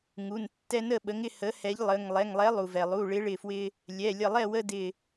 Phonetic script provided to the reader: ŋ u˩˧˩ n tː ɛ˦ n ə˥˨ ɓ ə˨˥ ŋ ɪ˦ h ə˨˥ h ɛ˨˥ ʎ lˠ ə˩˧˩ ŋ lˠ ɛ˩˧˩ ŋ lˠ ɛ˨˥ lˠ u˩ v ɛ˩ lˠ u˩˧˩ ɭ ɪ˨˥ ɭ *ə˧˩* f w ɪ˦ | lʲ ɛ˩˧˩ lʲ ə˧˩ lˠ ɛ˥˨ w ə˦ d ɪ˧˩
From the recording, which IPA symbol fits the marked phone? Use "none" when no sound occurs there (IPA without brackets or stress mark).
ɪ˧˩